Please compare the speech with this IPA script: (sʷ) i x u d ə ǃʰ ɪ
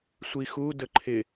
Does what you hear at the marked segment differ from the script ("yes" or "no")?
no